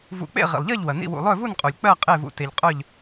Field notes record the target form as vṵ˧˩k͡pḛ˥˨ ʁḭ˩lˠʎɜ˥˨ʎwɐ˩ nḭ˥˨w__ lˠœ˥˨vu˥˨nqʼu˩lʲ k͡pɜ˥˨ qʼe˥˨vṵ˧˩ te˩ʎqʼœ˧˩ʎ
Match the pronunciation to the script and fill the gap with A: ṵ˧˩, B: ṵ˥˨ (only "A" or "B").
A